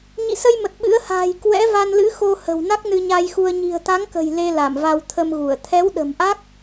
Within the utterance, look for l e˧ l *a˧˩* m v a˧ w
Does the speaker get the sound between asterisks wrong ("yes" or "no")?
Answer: no